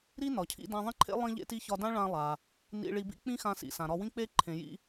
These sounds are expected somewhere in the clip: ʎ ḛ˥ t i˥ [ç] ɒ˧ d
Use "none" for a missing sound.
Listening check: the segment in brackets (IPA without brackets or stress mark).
ç